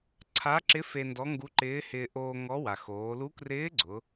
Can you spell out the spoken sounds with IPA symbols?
ǀʰ a˧˥ ǁ ɪ˧˥ f e˧ n d ɔ˧˥ ŋ ɡ u˧˥ ǃ ɪː˧˥ h ɪː˧ ʔ oː˧ ŋ ɔ˧˥ w a˩ x oː˩˧ l u˧˥ k r ɪː˧˥ ɡ͡ǀ ʊ˩˧

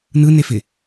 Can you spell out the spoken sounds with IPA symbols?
n ɯ n e f ɪ

